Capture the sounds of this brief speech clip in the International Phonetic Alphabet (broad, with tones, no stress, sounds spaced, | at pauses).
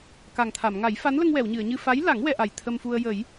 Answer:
k a˨˩ ŋ t̪ʰ a˨˩˨ m ŋ a˨˩˦ j f a˧˥ n l ə˧ ŋ w ɛ˨˩˨ w ɲ ɨ˨˩˨ ə̯ ɲ ɨ˧ f a˧˥ j l a˨˩˦ ŋ w ɛ˧ ʔ a˨˩ j t̪ʰ ə˧ m f u˧ ə̯ j ə˨˩˦ j